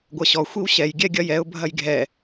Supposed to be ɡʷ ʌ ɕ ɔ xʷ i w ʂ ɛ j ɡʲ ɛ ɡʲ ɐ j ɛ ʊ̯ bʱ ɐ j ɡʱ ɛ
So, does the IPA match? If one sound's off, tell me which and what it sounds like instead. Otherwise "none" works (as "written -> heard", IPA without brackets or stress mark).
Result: ʂ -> ɕ